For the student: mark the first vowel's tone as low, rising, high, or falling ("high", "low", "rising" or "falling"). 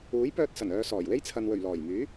rising